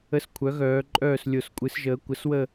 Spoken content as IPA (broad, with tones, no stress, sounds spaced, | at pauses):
ə˦ s kʷʰ œ˩˥ ɣ œː˩˧ ǃʼ œː˦˨ s lʲ o˨˩ s kʷʼ ɨ˩˧ s ʒ əː˩˧ kʷ ə˩˥ s w ə˦˨